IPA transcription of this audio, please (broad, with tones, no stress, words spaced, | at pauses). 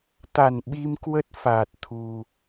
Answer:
t̪a˧˩nɓi˧mkwə˦˥t̚ faː˨˩t̚t̪ʰu˨˩